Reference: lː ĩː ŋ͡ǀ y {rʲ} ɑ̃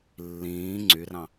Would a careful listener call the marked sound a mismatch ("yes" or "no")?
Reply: yes